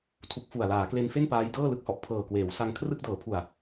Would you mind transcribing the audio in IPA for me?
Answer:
tʰ u˦˥ k̚ f u˨˩ a̯ l aː˩˦ k l e˧ n f e˥˩ n p aː˦˥ j d ɤː˥˩ l ɯ˥˩ k̚ h ɔ˨˩ ʔ pʰ ɤː˨˩ k w eː˩˦ w s a˧ ŋ kʰ r ɯ˥˩ k̚ d ɤː˩˦ pʰ u˨˩ a̯

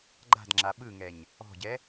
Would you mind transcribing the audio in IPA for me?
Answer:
ɡ͡ǃ a̤ d ŋ͡ǁ a ɓ ɯ ŋ ɛ ɲ | ɔ̤ ɟ ɛ

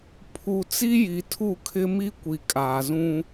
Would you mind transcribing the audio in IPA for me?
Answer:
pʰ u˨ t͡s i˦ j i˨ tʰ u˦˨ kʰ ɪ˦ m i˦ kʷ i˨ kʼ aː˨ z ũ˦

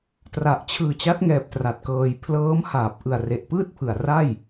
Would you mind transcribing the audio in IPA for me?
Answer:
t r a˨˩ ʔ t͡ɕʰ ɯː˨˩ t͡ɕ a˦˥ t̚ ŋ ɛː˨˩ p̚ t r a˨˩ t̚ k ɤː˧ j pʰ l ɤː˦˥ m h aː˨˩ p̚ ʔ ɯ˨˩ a̯ r e˨˩ ʔ p ɯː˥˩ t̚ pʰ ɯ˨˩ a̯ r a˥˩ j

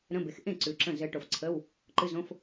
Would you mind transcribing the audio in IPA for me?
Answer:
ɾ ə̃˧˥˧ b e˨˥ x ʔ ẽ˥˩ ǀ ʉ˨ ǁ ə̃˥˩ z ɘ˨˥ ʈ o˨ f ǀʰ ə˧˥˧ w | ǃ ɨ˧˥˧ z õ˧˥˧ f

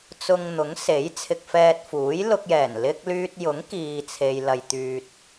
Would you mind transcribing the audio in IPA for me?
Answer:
t͡s ʊ˧ ŋ n̪ ʊ˨˥ ŋ s e˨˥ j t͡sʰ ɪ˧ k̚ f ɛː˧ t̚ f uː˨˥ j l ʊ˧ k̚ j ɛː˨˩ n l ɪ˥ k̚ l yː˧ t̚ j ʊ˨˥ ŋ k iː˨ t͡sʰ e˨ j l ɐ˧ j t̪ yː˧ t̚

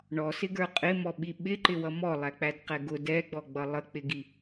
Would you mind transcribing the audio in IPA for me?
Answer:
ɳ ɔ s ɪ ɡ ə˞ qʼ ɪ m ɔ ɓ i ɓ ɪ ǃ ɪ w ʌ m ɔ lˠ æ k͡p æ d q ɛ ɡ ʊ d ɛ ɡ͡b ɔ ɡ͡b ʌ lˠ ə k͡p ɪ ɡ i

